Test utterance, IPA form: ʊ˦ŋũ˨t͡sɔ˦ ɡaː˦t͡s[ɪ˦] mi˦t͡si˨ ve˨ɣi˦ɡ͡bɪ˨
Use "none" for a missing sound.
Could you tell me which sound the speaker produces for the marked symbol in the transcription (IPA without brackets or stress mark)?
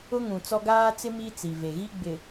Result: ɪ˦